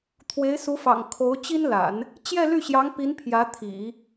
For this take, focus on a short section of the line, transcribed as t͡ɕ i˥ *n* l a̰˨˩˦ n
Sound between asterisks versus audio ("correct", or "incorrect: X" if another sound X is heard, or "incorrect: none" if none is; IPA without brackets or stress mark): correct